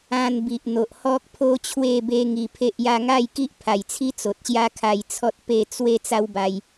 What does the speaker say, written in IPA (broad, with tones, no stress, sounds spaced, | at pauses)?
ã˧ n b i˨ ʔ n̪ o˨ ʔ h ɔ˦ k̚ pʰ o˦ t͡ɕʰ w e˥˧ b e˦ ŋ i˧ pʰ e˦ ʔ j a˦ ŋ a˥˧ j k i˦ ʔ pʰ a˨˩ j t͡sʰ i˦ t͡s o˨ t̚ ɕ j a˦ kʰ a˧ j t͡sʰ ɔ˦ t̚ p e˥˧ t͡s w e˦ t͡s a˦ w b a˧ j